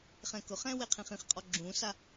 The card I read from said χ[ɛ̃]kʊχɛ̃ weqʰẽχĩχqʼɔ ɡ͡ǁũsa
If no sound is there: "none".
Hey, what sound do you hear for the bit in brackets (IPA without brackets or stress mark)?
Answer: ɛ̃